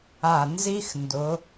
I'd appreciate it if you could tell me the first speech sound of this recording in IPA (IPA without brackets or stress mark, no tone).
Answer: a